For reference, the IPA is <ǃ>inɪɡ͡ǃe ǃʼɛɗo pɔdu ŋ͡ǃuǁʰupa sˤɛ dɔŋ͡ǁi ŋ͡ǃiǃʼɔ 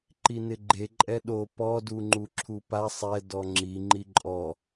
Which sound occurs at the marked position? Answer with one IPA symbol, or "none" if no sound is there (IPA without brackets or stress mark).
ǃ